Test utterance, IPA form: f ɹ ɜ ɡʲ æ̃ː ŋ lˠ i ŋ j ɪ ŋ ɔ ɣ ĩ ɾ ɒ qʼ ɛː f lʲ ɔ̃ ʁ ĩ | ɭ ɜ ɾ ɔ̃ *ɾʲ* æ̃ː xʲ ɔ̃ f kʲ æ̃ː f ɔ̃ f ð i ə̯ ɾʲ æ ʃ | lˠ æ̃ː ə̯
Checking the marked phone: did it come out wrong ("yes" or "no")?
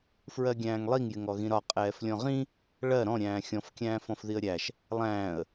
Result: no